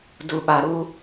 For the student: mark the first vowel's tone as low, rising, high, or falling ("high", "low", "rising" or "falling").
low